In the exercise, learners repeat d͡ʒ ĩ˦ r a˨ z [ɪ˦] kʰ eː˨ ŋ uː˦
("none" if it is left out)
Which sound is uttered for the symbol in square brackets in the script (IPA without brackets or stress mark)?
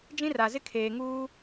ɪ˦